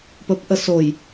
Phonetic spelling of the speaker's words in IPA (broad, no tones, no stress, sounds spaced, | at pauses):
p ə p ʔ ə s o j